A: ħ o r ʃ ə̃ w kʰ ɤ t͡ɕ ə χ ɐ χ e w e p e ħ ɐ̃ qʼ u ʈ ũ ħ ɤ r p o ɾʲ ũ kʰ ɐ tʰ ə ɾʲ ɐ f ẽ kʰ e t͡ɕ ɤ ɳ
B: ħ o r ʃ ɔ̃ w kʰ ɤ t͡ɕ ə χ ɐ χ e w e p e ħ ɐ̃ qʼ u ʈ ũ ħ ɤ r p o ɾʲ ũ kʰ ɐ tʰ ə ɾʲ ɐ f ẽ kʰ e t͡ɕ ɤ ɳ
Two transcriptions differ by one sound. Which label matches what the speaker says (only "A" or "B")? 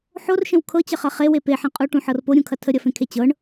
A